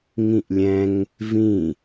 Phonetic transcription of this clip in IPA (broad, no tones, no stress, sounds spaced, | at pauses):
ŋ ĩ ʔ lʲ ɛ̃ ŋ | v ĩ